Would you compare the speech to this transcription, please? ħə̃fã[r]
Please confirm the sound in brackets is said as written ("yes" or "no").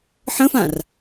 yes